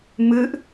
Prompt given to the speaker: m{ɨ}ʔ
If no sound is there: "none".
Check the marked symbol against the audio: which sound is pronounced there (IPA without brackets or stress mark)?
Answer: ɨ